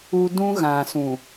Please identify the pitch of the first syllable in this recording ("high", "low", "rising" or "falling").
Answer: high